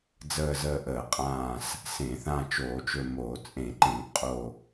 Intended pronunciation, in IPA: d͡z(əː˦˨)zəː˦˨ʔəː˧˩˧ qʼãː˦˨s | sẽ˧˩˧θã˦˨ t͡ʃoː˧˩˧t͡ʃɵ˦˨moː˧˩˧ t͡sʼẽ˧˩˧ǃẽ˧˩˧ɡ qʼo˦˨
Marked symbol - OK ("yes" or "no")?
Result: yes